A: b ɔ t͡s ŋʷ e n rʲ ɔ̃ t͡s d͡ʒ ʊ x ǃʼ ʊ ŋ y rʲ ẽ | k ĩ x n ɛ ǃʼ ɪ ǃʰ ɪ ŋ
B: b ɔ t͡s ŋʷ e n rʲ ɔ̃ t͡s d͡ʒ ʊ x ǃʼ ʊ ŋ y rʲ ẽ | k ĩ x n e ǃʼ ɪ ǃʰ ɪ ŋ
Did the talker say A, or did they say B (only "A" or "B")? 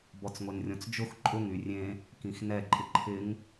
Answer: A